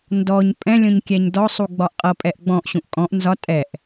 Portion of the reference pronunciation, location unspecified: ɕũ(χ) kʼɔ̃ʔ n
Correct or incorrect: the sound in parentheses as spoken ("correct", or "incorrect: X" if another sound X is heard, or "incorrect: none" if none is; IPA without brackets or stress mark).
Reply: incorrect: ʔ